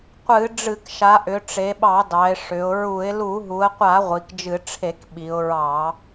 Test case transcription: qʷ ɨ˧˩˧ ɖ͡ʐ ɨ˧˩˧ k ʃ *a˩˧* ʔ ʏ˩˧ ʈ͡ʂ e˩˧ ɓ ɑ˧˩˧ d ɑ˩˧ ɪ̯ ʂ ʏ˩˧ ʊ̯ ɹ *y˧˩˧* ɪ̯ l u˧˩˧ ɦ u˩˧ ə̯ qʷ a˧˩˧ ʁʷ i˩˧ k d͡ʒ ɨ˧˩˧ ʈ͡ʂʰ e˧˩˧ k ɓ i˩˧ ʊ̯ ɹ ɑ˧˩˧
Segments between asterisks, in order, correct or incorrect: correct, incorrect: u˧˩˧

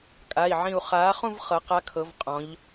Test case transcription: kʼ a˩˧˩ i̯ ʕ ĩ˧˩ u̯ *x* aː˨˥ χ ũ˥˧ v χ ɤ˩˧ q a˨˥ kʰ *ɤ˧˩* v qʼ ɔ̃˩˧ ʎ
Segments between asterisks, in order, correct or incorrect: incorrect: χ, incorrect: ɤ˩˧

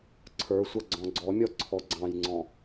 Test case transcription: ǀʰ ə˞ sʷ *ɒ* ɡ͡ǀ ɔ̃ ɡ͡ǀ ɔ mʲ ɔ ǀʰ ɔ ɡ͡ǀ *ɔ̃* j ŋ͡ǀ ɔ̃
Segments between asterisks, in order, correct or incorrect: incorrect: ʌ, incorrect: ɑ̃

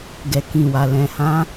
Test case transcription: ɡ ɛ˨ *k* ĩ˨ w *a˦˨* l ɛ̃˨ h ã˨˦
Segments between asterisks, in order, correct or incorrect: correct, incorrect: a˨

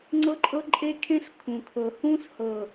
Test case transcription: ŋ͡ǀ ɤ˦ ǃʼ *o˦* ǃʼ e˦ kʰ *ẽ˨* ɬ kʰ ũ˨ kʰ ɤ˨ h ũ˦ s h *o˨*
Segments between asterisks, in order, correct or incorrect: incorrect: ɤ˦, incorrect: ẽ˦, incorrect: ɤ˨

